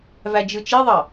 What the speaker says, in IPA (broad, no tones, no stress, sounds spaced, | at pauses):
v æ d͡ʒ ɯ t͡ʃ i ðˤ ɑ